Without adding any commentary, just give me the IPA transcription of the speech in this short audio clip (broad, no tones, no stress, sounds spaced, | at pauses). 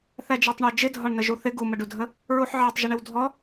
θ æ d͡ʒ æ tˤ ɳ ɑ d͡ʒ ɪ dʱ ɒ ɳ n ə ʒ u θ ɪ ɡ u m ə ɖ u dʱ ə | ɹ u ħ ʕ ɑ tˤ ʒ ɪ ɳ ɪ w dʱ ɔ